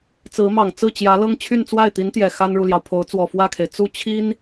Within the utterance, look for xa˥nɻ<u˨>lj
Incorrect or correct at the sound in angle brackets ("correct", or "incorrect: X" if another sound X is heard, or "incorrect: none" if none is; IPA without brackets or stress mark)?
correct